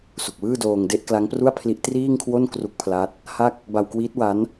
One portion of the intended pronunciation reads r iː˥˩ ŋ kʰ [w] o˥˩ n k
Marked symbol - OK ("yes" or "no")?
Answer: yes